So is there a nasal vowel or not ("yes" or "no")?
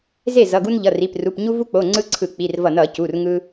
no